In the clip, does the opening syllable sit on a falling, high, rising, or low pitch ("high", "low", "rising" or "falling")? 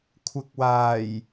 low